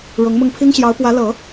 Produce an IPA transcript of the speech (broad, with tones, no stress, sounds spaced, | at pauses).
ɻ ʊ˧˥ ŋ m ʊ˥˩ ŋ pʰ i˥ ŋ ɕ j ɑ˧˥ ʊ̯ p w ä˧˥ l ɤ˨˩˦